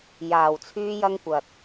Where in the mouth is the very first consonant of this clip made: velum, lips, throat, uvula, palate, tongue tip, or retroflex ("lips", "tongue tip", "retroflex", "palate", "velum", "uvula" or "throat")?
palate